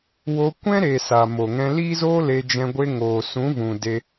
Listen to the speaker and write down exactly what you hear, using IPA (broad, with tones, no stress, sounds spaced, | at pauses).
w o˧ kʷ ɛ̃˦ ɾ e˨ s a˨ m o˨ ŋ ɛ̃˧ l iː˦ z oː˦ l e˧ d͡ʒ ɛ̃˧ ɡʷ e˧ ŋ oː˨ s ũ˨˦ v ũ˨ d e˧